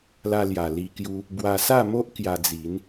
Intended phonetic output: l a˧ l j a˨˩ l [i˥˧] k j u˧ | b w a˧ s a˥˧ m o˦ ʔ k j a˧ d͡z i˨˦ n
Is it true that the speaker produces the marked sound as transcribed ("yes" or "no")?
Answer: no